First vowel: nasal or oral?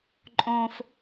nasal